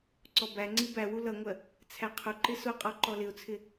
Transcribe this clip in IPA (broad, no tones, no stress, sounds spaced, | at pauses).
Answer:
ǀ ɔ b æ ŋ͡ǀ i b æ w u l ʌ ŋʷ ɜ | t͡sʰ æ qʰ ʊ ǃ ɪ s ʊ qʼ ɔ ǃ ɔ l ɪ ʊ̯ t͡sʰ ɪ